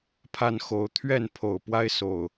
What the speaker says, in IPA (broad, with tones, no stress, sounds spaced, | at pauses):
pʰ a˥˨ n x o˨˦ ʊ̯ t̪ʰ ɥ ɛ˥˨ n pʰ o˨˩ ʊ̯ p w a˦ ɪ̯ s o˨˩ ʊ̯